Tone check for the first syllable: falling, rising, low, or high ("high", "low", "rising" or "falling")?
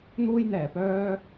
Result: high